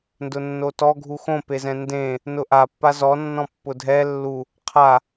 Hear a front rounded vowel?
no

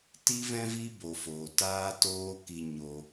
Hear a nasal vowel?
yes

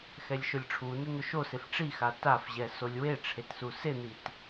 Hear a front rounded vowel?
no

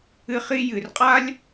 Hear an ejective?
yes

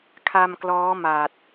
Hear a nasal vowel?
no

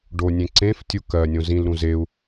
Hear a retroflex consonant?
yes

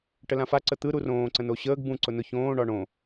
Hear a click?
yes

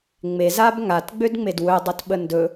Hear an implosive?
yes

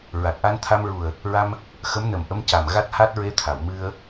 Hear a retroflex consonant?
no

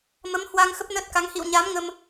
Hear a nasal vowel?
no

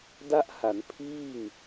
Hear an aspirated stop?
yes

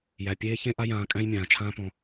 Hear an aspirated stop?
yes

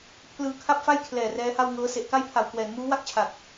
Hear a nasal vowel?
no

